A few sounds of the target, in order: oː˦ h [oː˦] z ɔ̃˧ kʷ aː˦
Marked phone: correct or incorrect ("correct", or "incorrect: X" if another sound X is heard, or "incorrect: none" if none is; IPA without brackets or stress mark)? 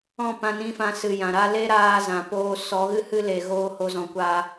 incorrect: o˦